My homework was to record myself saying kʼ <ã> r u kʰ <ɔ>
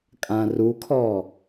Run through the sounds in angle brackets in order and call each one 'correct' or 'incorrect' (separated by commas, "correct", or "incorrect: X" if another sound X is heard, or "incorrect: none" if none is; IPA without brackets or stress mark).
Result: correct, correct